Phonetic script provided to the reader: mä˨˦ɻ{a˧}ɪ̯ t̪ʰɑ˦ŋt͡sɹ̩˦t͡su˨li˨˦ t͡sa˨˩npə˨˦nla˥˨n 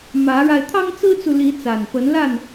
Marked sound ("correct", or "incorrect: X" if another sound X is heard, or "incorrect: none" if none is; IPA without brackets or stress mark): correct